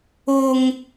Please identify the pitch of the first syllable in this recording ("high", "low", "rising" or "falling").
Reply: high